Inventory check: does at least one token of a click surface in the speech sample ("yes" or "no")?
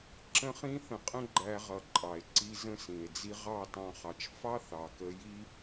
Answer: yes